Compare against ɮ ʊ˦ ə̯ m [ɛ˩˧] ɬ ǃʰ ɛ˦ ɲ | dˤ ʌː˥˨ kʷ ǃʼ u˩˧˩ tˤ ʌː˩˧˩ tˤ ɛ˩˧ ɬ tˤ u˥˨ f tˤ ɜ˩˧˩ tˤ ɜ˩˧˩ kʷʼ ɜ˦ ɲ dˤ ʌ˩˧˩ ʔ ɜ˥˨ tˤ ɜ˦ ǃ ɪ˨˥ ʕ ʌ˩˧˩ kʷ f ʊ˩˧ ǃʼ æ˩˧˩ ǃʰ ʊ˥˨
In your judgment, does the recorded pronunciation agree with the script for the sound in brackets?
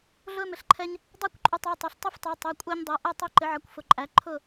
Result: no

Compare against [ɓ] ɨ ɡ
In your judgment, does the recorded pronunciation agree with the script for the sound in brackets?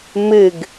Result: no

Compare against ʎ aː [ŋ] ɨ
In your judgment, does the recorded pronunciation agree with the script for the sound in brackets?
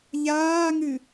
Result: yes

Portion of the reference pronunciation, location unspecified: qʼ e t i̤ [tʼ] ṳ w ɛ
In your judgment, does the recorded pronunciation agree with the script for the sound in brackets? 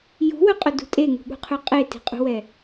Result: no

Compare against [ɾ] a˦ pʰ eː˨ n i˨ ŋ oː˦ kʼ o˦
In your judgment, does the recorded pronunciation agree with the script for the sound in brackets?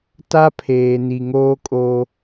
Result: no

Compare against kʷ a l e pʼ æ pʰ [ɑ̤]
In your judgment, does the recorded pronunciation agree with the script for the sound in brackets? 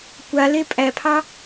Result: no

